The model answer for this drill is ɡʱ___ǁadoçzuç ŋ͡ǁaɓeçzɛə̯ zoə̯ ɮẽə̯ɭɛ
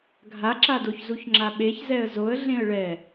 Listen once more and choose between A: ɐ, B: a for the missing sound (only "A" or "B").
B